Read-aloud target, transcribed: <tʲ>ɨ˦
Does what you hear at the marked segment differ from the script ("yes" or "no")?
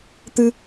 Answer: yes